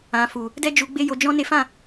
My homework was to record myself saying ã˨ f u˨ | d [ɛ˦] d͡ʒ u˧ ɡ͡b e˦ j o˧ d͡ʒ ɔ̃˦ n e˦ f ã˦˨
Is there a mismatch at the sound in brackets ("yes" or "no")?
no